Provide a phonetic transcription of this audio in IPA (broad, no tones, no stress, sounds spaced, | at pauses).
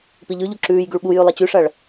p i ʎ ʉ ʎ u ǁ ʉː j ɡ ʉ ɭ ɓ u j ʉ lˠ ɐ t͡ɕ ʉ ʂ ɐ ɭ